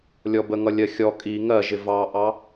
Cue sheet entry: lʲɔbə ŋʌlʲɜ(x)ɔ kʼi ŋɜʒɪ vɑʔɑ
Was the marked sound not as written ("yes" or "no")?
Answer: yes